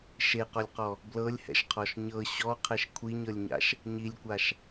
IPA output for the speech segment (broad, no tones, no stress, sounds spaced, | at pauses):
ʃ e q ɔ lʲ q ɔ | b l ɤ lʲ h ɛ̰ ʃ qʰ ɔ ʃ ɲ ɤ ɕ ɔ qʰ ɛ ʃ kʷʰ i ɲ ɤ lʲ ɲ a̰ ʃ | ɲ i lʲ kʷ a ʃ